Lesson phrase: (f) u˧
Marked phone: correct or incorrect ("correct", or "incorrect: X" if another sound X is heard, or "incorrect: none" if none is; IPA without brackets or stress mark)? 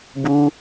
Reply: incorrect: b